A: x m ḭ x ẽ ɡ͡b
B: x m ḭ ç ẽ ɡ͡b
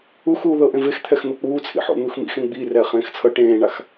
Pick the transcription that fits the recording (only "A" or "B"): A